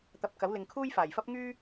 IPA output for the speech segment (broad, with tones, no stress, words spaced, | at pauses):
t̪ɐ˧p̚kɐ˨˥w lɪ˨ŋkʰuː˥jfaː˨˩jfɐ˥p̚ ŋyː˥